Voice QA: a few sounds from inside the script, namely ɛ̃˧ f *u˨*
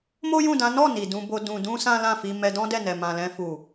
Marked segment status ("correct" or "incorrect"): correct